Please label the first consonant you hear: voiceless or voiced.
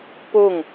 voiceless